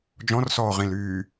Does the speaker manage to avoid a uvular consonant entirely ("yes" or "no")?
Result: no